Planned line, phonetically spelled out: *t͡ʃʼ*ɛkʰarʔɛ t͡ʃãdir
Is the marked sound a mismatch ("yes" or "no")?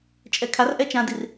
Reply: no